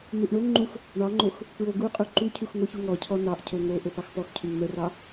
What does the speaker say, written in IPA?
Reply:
n̪ u ʔ ɳ o ŋ ŋ͡ǃ u x | ɳ ɑ ŋ͡ǃ o x | p ɹ o ɡ u qʼ u ǃ u cʰ u x ŋ o ç u ŋ ɔ cʰ ɔ n ɑ ʔ cʰ o ŋ o ʔ o p ɑ x p ɔ x cʰ u ŋ n̪ ə r ɑ

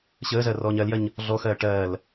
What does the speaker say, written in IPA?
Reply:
ɕ əː z ɜ r ɔː ɲ ɜ l j ɜ ɲ | ɮ ɔ x ɜː ʈ ɜː l

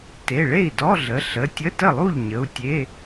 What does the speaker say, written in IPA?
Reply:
t e˩˧˩ ɭ e˥˩ i̯ d ɔ˧˥˧ ɮ ə˩˧˩ ɬ ə˩˧˩ tʲ ə˧˥˧ t ə˥˩ lˠ u˥˩ ʎ ɲ ə˩˧˩ u̯ tʲ e˧˥˧

